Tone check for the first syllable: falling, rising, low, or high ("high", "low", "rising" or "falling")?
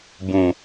low